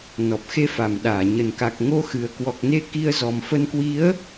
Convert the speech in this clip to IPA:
n ɔ˨˩ p̚ x e˧ f a˧˩ m ɗ aː˧˩ ɲ ə˧˩ n k a˨˩ k̚ ŋ o˧ x ɨ˨˩ ə̯ k w ɔ˨˩ k̚ n e˧ k i˧ ə̯ z ɔ˨˩ m f ə˧ n k w i˨˦ ə̯

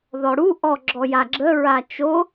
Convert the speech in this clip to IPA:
ð ɔ ɽ u ʔ ɔ ɡ͡ǁ ɔ j a ɡ͡ǁ ə ɹ a t͡ʃ o

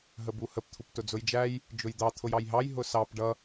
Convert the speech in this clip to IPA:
ɦ ə b u h ə p t̪ʰ u p t ʊ d͡z ʊ j d͡ʒ æ j | d͡ʒ ʊ j d̪ ɑ t̪ʰ ʊ j ɑ j ɦ ɑ j ɦ ʊ s ɑ p ɖ ʌ

